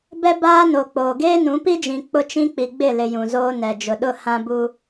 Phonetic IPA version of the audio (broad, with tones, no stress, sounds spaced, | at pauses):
b ɛ˦ b aː˦ n o˨ k͡p oː˨ ɡ eː˦ n ũ˨˦ p i˦ d͡ʒ ĩ˨ k͡p ʊ˦ t͡ʃ ĩ˦ k͡p i˨ ɡ͡b ɪ˦˨ l ɪ˨ j ũ˨ z oː˦ n ɛ˨ d͡ʒ ʊ˨ ɗ ʊ˦˨ h ã˦ b u˦